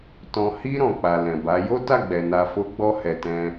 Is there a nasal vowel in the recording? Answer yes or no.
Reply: yes